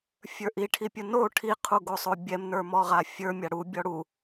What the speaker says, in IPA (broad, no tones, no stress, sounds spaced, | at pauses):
fʲ ə˞ ʔ i ʈʰ i pʲ u n o ʈʰ i qʰ u ɡ o sˤ o bʲ ɛ m n ə˞ m ɔ ʁ a fʲ ə˞ mʲ a ɽ u bʲ ɔ ɽ u